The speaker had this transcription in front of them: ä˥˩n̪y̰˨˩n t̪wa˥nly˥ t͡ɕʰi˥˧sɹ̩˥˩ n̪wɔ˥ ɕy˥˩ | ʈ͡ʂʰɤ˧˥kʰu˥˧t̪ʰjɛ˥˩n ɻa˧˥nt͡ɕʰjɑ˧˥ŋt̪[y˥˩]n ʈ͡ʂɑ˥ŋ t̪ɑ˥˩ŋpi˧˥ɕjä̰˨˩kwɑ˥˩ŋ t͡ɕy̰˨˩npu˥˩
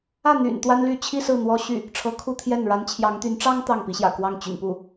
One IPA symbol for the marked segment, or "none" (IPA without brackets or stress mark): y˧˥